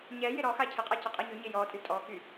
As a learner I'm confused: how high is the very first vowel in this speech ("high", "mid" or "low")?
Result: mid